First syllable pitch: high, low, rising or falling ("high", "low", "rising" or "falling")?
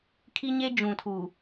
high